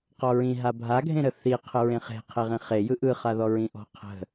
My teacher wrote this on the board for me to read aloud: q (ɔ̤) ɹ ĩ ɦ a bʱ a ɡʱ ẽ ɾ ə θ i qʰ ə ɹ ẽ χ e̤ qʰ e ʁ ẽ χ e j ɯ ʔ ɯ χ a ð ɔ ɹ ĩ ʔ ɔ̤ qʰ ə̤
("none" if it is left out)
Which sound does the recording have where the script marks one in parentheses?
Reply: ɔ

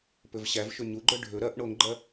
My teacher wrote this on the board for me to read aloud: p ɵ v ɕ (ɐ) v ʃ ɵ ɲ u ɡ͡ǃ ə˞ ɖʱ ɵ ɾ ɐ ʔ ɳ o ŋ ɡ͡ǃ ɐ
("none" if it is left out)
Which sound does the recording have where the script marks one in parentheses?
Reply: æ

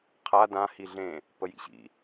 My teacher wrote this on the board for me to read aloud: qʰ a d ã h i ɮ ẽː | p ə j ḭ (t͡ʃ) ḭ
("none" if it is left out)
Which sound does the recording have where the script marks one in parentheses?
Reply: ɕ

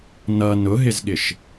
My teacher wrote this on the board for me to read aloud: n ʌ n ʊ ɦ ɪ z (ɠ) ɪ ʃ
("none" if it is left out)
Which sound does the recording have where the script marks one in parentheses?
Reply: ɠ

